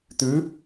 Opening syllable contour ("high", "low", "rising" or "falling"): rising